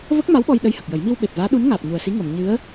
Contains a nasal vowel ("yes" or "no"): no